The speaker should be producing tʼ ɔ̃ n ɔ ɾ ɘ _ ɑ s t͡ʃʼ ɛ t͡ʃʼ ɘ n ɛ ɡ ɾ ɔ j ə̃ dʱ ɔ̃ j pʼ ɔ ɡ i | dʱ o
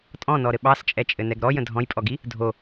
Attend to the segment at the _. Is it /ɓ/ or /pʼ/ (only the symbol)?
ɓ